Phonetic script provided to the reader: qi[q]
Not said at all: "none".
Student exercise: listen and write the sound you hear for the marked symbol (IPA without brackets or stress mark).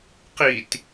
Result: t